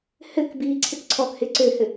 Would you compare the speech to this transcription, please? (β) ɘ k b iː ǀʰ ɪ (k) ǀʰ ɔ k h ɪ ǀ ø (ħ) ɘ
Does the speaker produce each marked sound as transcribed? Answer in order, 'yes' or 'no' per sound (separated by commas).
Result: no, yes, no